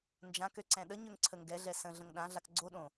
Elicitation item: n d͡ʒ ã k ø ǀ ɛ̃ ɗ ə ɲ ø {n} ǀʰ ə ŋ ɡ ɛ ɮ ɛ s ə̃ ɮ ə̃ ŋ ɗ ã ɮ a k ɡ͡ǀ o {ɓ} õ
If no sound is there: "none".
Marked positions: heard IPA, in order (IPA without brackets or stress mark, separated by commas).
ŋ, ɗ